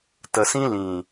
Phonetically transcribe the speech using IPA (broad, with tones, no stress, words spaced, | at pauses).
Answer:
tə˨sĩ˦ lĩ˨